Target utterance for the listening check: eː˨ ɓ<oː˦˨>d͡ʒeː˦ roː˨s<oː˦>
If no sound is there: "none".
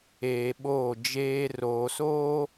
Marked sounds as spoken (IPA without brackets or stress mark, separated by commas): oː˦˨, oː˦